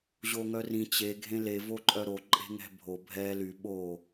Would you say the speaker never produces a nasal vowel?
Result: no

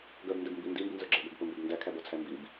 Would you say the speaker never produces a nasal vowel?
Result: yes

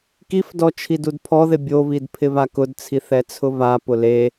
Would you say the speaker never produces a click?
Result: yes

